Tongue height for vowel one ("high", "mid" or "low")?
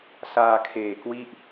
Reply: low